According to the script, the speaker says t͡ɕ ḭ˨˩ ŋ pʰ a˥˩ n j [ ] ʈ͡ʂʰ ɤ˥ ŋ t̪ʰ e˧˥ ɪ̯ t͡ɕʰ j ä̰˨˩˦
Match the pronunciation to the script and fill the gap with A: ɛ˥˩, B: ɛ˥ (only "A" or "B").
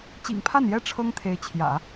B